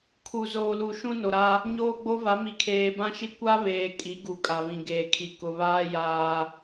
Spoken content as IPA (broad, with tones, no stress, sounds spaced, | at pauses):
kʰ u˨ z oː˨ l u˨ ʃ ũ˦ n o˨ ɾ a˦ | ɲ oː˦ ɡ͡b o˦ v a˨˦ m i˨ kʰ eː˨ b ã˦ ʃ i˦ kʷ a˦ β eː˨ kʼ i˨˦ ɡ u˨ kʼ a˨ β ĩ˨ ɡ eː˨ kʰ i˨ k ʊ˨ β aː˦ j aː˦